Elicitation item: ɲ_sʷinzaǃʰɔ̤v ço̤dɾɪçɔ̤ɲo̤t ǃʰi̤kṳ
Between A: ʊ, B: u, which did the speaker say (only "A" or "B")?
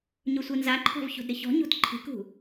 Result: A